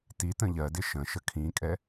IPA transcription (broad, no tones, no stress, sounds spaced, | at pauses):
t i t ə̃ ʎ ɜ d ɪ ʃ ə̃ ʃ ə kʰ ĩ kʼ ɛ